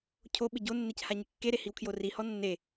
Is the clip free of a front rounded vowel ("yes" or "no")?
yes